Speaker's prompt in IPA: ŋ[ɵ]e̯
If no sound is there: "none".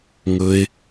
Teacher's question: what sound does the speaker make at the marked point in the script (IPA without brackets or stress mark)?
ɵ